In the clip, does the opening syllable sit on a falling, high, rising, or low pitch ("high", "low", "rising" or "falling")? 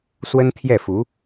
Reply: high